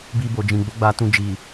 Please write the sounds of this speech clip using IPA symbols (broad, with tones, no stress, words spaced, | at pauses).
bi˧bo˨d͡ʒĩ˨ ɡ͡bo˨˦ɡ͡ba˧tũ˧ d͡ʒi˨